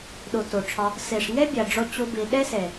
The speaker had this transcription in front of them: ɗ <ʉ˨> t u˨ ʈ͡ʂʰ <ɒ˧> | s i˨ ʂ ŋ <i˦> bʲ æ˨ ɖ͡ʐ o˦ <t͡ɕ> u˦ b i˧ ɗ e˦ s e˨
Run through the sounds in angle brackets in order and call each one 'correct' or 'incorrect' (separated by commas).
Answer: incorrect, correct, incorrect, correct